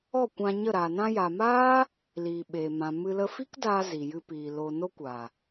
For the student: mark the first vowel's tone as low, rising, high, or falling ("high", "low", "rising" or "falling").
falling